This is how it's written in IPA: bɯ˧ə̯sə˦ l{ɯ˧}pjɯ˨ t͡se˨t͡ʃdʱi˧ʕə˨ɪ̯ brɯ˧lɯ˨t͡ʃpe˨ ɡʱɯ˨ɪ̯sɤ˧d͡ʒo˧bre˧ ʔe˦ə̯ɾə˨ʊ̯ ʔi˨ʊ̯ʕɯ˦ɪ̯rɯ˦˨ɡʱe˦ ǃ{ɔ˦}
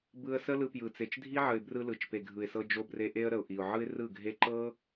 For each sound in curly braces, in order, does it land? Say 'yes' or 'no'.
yes, no

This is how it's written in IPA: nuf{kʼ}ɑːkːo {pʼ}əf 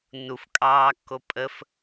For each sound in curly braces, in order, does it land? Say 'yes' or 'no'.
yes, yes

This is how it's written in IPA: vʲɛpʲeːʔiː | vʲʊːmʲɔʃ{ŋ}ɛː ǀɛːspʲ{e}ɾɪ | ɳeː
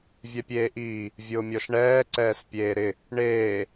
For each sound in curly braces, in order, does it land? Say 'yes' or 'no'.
no, no

